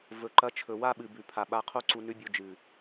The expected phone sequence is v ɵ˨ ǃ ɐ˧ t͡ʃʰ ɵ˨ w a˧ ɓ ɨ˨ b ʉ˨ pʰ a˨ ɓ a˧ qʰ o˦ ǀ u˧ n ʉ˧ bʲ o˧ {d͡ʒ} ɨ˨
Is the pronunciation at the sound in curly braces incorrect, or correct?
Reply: correct